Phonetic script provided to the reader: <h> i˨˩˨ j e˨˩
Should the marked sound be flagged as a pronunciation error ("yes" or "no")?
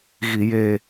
yes